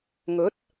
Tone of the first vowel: rising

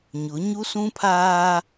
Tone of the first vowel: rising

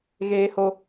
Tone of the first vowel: high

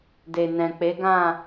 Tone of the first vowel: low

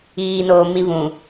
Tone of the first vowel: low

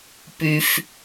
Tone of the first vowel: low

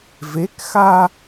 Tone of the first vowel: rising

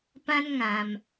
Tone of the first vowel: high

